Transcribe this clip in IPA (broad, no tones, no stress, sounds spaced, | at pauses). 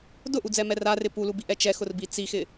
d ʊ ʔ u d͡z ɛ m ɛ r a r ɪ p u l u b i ʔ ɛ t͡ʃ ɛ x ʊ r b i t͡s i x ɪ